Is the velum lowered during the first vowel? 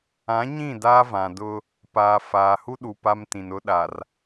yes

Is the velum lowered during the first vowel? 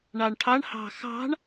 no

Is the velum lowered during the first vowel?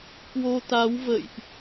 no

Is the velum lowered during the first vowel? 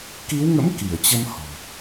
no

